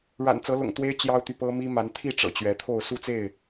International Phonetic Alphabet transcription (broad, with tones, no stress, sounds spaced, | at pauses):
ɻ a̰˨˩ n t͡s ɤ˨˦ l ʊ̰˨˩ ŋ t̪ w e˦ ɪ̯ t͡ɕ j ɑ˦ ʊ̯ t̪ y˨ p ɤ˦ m i˦ m a˨˦ n t̪ʰ i˥˨ ʈ͡ʂ ɤ̰˨˩ t͡ɕ ɥ ɛ˨˦ t̪ʰ o˥˨ ʊ̯ s u˥˨ t͡s e˥˨ ɪ̯